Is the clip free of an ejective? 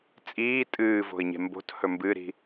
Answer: no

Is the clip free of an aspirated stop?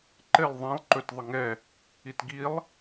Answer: yes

